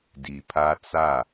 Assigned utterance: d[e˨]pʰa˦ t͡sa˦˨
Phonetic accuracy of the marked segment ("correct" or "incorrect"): incorrect